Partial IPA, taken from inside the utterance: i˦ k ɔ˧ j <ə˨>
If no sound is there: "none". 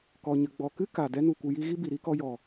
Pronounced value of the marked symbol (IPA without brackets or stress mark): ɔ˨